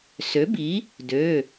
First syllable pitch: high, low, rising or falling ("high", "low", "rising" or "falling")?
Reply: rising